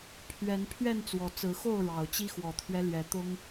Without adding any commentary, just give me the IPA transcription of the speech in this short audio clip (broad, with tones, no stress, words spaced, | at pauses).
pʰɥɛ˨˦n pʰɥɛ˥˨nt͡swɔ˨˩ t͡sɹ̩˨˦xo˥˨ʊ̯ ɻɑ˨˩ʊ̯t͡ɕi˦ xwɔ˨˩t̪ʰɥɛ˦ lɥɛ˨˦t̪ʊ˦ŋ